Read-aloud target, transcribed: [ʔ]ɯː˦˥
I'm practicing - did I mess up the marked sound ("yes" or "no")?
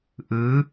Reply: no